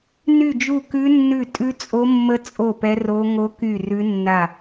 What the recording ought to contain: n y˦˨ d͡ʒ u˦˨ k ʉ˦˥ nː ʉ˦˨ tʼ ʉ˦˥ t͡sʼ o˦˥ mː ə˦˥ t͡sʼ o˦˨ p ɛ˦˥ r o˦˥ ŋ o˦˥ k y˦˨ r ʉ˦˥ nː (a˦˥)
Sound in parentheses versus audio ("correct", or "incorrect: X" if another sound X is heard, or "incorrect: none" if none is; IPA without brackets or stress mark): incorrect: a˦˨